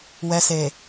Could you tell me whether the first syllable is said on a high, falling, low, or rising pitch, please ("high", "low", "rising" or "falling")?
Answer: low